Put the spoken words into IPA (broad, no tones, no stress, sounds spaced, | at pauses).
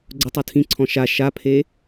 ɡ͡ǀ ʊ tˤ o tʰ ĩ ǀʰ ɔ̃ ʃ a ʃ a pʰ e